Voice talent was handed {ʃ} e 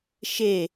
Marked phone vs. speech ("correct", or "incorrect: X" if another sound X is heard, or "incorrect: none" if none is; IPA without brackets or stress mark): correct